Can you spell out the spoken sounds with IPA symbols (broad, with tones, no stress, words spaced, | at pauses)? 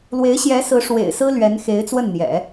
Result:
lwe˧˥ɪ̯ɕjɛ˧˥sɹ̩˧˥ ʂwḛ˨˩ɪ̯sɹ̩˥ lɥɛ˧˥nxe˧˥ɪ̯t͡swə˥˩nn̪jɛ̰˨˩˦